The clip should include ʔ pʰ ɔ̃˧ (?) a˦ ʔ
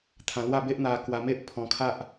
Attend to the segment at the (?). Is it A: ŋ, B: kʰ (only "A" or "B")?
B